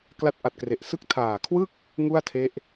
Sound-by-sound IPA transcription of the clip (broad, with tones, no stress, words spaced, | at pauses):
kla˦˥t̚ʔa˨˩t̚kre˨˩ʔsɯ˥˩k̚ tʰaː˨˩kʰwɯ˥˩k̚ | ŋu˥˩a̯tʰe˦˥ʔ